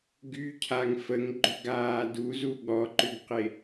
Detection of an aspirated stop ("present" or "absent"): present